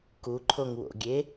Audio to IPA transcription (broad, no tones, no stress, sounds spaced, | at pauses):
k u ǃʰ o ŋ w o̰ ɡʲ e